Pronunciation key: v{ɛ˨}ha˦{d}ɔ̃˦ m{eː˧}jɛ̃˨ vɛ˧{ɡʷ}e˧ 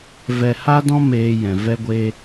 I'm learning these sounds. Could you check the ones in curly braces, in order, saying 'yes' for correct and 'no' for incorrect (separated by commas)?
no, yes, yes, yes